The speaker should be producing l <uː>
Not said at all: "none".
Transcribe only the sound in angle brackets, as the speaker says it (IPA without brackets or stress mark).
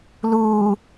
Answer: uː